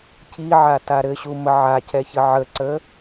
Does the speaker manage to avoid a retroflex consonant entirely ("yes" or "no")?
yes